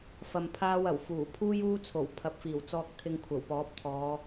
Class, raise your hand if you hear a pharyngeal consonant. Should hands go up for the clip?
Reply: no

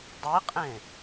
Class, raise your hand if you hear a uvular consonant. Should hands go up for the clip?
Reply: yes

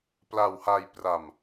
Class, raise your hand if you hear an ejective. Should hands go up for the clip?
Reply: no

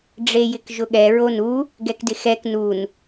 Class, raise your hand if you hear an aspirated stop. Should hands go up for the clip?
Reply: no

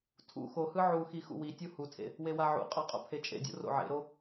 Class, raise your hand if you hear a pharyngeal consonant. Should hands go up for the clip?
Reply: yes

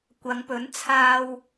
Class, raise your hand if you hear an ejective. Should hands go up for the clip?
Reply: no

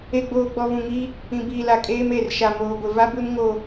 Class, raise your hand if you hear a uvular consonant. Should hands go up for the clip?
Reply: no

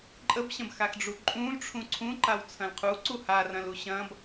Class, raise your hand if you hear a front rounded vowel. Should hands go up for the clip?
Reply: no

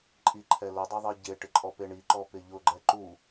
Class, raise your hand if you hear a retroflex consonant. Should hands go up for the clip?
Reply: yes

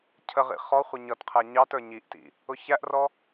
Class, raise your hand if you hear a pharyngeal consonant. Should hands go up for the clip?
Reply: no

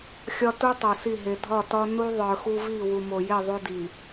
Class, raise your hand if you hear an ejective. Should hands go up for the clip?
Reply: no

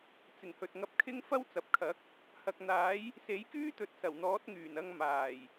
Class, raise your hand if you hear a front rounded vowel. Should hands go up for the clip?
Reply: yes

